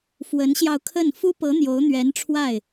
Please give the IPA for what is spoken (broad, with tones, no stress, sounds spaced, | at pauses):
f w ə˧˥ n ɕ j ɑ˧ ʊ̯ kʰ ə˥˩ n f u˥ p ɤ˧˥ n̪ j o˧˥ ʊ̯ n̪ ɥ ɛ˧˥ n ʈ͡ʂʰ w a˥˩ ɪ̯